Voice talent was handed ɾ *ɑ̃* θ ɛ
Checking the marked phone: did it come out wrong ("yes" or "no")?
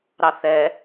yes